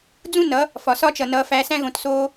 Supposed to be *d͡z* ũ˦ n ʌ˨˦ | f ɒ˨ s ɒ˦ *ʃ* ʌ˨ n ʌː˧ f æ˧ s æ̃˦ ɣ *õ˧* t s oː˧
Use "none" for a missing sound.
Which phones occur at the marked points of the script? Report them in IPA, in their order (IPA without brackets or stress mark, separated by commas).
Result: d͡z, t͡ʃ, õ˧